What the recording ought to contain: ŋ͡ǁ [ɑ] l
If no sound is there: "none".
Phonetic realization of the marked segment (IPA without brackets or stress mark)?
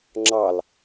ɑ